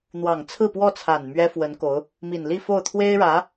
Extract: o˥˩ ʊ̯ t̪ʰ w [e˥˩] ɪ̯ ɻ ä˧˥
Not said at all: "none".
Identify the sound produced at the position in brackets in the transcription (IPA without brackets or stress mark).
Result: e˥